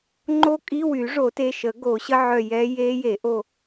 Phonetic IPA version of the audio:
ŋ͡ǃo˦˥kʼi˧˥˧wy˨˩˦ ʐo˨˩˦te˩˧˩ʃə˨˩˦ ɡo˨˩˦ɕə˧˥˧ ʕœ˦˨jɛ˦˥ je˦˥je˨˩˦ʔo˦˨

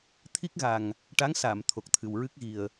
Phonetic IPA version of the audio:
t̪ʰi˦˥k̚ɣa˨˩ŋ | ʈa˧˥ŋsa˨˩˨m t̪ʰo˨˩k̚t̪ʰɨ˨˩wɹɨ˦˥k̚ɣi˨˩ə̯

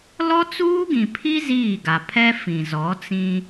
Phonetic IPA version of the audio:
lɔ˦t͡suː˦ɡĩ˨pʰi˦ ziː˦˨ɡa˨ pʰɛ˦ fĩ˨ zɔ˨˦ t͡sĩ˦

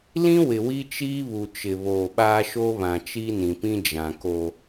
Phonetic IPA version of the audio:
lĩ˦wɪ˨ wi˦t͡ʃiː˦βu˨t͡ʃɪ˨ βoː˨ɓaː˦ʃoː˦ βã˨t͡ʃi˦nĩ˨pĩ˦ d͡ʒã˨ ko˦

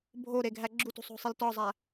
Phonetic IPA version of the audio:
bʱo ɾeɡʱæɡ͡ǁutṳ sˤo̤sˤiltɒzˤæ

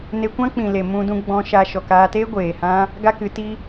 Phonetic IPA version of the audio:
ne˧kʷã˦ k͡pĩ˨le˨ mũ˧dũ˧ɡ͡bɔ̃˧ ʃa˧ ʃɔ˨kaː˧teː˦ ɡʷeː˨hã˦ | ɡa˦kɨ˨˦ti˦

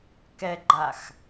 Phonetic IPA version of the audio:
kɛɡ͡ǃax

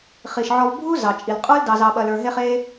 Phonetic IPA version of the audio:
χi˩ʃʕɔ˨vbʱu˦ zɑ˩t͡ʃʼi˩l qʼə˞˥ldɑ˨ zɑ˨ɓɐ˨lə˞˨ ɦe˦χe˦

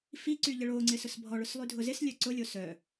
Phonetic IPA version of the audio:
fiǀy ʎəɭoŋ͡ǀɪ sʊsbʱɔɭʊs lˠydʱʊzɪslʲœ ǀʊlʲo sœ

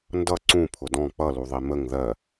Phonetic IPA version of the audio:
ndʌ ǀũ pʰʊdɔ̃ k͡pʌluðˤi məŋ ðɜ

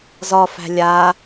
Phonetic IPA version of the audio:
zɒfæ̤ lʲa

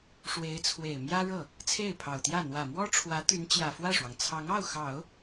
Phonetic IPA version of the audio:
ʂwe˧˥ɪ̯t͡sʰwe˨˩ɪ̯ mjä˥ɻɤ˥˩ | t͡sʰe˥˩ɪ̯pʰɑ˨˩ʊ̯t̪jä˥˩ n̪wä˨˩mwɔ˥ʈ͡ʂʰwä˧˥ t̪y˧˥nt͡ɕjä˨˩fwä˥˩ʂwɑ˩ŋ t͡sʰɑ˧˥ŋɑ˥˩ʊ̯xɑ˨˩˦ʊ̯

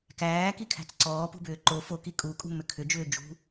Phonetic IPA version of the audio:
kæːkikʰæ̤t͡s ǀɔːp ṳbʏːǃo foki kʼukʼṳ mʏkʰʏd͡ʒʏː d͡ʒṳ

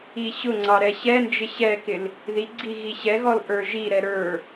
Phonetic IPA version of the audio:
iɕʊŋ͡ǀɑ ɾɛɕɛnd͡ʒɪ ɕɛkɪl | ðiɡ͡ǀi ɣiɕɛɣɔl ʔə˞ʒiɾɛ ɾə˞

